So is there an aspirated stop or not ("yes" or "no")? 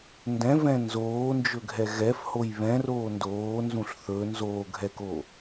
no